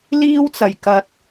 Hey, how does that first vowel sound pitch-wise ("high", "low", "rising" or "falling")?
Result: high